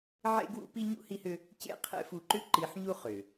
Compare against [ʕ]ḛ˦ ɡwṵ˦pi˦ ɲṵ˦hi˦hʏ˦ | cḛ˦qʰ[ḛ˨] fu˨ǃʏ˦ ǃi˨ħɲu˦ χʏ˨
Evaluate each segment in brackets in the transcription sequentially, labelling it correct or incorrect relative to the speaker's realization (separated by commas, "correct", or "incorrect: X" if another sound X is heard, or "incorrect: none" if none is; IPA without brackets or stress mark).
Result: correct, incorrect: ḛ˦